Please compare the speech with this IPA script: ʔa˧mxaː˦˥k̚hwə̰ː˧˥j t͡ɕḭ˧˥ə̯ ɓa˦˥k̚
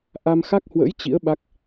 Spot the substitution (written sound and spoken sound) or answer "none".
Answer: aː˦˥ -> a˦˥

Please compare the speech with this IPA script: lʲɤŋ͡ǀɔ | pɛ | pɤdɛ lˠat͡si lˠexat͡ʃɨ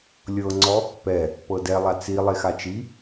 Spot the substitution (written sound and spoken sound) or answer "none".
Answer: ɨ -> i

